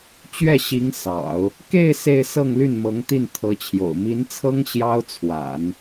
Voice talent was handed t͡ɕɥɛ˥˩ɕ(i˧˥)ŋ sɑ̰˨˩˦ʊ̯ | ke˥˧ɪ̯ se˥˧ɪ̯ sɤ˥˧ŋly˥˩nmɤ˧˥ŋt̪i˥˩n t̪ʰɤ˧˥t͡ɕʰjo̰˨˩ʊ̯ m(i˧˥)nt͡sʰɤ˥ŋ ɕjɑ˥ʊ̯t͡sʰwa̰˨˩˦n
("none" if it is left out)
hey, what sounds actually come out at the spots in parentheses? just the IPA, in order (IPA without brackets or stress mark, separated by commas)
i˧˥, i˧˥